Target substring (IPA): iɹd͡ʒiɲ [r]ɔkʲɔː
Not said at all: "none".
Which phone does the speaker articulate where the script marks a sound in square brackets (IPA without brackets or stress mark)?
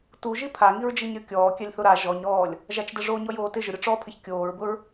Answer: ɾʲ